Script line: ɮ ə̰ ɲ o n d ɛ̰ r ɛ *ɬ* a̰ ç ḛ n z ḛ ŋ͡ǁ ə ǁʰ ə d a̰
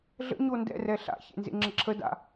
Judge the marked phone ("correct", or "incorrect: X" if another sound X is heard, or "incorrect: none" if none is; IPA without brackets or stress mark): correct